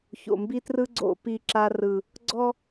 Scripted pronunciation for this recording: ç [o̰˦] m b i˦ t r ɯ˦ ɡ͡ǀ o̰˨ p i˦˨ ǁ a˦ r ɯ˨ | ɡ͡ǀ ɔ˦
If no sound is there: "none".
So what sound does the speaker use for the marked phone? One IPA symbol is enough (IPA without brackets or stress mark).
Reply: o̰˨